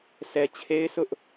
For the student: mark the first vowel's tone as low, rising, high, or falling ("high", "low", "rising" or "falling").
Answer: low